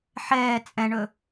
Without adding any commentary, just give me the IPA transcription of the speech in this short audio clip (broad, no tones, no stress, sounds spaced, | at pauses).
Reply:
ħ ɛː t͡sʼ ɛ̃ ɳ ɵ